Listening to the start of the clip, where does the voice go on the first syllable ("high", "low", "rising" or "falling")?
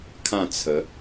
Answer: falling